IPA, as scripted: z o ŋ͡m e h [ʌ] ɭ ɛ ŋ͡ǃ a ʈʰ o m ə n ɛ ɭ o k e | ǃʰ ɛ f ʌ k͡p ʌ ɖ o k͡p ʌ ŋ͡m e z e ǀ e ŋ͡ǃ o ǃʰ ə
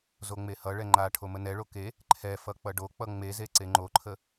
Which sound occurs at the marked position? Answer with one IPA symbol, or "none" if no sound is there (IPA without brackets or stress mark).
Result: ʌ